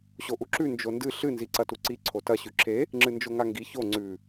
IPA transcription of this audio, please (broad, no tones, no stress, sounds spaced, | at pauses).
ɕ o ʔ u ǁ ʉ n d͡ʒ o n d ɨ ɬ ɨ n z i ǀ ɐ t u ǀ i ǀʰ o t ɐ ɕ ʉ ǁʰ e | ŋ͡ǁ ɨ n d͡ʒ o ŋ a ŋ ɡ i ç o ŋ͡ǀ ʉ